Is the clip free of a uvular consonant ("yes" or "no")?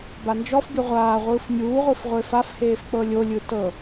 no